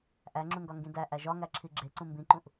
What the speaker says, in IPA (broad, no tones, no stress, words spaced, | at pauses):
ʔæ ŋ͡ǁũŋɡɒŋɡĩdæ ʔæʒɒŋæǁʰi ɡ͡ǁeǀũ mbĩǃũʔ